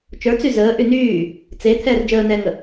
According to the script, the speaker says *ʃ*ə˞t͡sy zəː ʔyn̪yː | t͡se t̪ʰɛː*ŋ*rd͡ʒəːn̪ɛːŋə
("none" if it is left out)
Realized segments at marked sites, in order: t͡ʃ, none

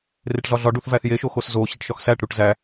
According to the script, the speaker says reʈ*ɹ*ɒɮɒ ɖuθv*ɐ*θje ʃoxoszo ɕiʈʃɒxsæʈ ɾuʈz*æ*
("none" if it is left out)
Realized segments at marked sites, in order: ɮ, æ, æ

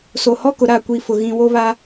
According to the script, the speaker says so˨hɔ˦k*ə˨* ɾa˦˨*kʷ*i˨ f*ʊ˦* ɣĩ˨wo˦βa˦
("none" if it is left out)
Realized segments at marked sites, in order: ʊ˨, kʷ, ʊ˨

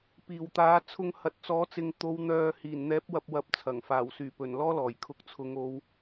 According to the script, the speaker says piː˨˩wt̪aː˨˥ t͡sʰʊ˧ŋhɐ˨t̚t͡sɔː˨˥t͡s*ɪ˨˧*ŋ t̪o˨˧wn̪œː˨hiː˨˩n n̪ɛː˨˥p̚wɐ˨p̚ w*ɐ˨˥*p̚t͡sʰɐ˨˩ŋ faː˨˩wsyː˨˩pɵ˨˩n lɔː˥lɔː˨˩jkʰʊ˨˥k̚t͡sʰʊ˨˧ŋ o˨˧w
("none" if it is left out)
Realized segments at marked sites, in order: ɪ˨, ɐ˨˥

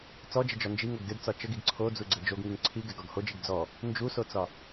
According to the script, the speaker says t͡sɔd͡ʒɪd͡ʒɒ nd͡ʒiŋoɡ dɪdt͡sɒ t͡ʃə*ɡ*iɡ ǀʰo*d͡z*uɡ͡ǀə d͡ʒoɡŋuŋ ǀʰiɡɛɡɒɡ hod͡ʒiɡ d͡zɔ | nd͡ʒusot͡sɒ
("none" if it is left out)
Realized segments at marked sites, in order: ɡ, d͡z

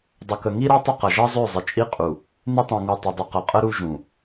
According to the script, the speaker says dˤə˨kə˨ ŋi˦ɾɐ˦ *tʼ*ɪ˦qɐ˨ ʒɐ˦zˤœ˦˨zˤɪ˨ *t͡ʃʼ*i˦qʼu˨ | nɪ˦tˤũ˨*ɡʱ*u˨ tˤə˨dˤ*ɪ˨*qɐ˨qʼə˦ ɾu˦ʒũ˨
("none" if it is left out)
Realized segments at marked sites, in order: tˤ, t͡ʃʼ, ŋ, ɪ˨

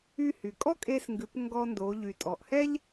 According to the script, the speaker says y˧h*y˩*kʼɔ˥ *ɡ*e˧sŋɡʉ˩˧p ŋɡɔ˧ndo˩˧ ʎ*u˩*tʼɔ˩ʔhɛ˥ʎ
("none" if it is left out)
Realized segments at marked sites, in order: y˩, kʼ, y˩

